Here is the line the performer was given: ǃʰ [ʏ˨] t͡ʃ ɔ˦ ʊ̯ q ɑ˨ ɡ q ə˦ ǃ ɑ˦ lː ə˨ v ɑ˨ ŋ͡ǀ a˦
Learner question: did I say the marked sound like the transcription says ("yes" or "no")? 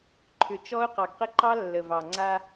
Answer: yes